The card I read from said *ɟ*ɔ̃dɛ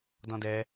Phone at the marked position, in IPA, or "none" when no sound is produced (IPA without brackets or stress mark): d